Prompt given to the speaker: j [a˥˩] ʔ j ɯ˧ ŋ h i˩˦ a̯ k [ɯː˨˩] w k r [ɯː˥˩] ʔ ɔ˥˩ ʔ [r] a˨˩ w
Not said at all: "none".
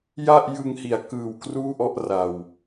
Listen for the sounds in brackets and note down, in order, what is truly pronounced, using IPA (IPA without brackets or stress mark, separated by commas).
a˥˩, ɯː˨˩, uː˥˩, r